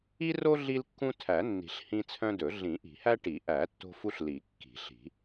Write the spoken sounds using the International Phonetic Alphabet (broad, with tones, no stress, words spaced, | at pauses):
i˦ro˦ ɮi˦lkːũ˦tʰæ˨˩˦nːi̤˨˩˦ɬ hĩ˦t͡sʰœ̃˦dɵ˨˩˦ ɮĩ˨˩˦ʔi̤˨˩˦hæ˦ʈi˨˩˦ ʔæ˨˩˦ tːo̤˦fu˦ɬli˨˩˦ kːi̤˨˩˦ɬi̤˨˩˦